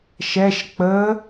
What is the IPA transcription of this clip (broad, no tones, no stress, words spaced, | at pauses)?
ʃɛʃ k͡pə